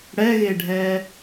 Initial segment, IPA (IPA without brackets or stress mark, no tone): ɽ